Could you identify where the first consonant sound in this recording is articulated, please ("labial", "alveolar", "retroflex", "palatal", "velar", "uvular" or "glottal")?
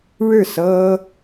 retroflex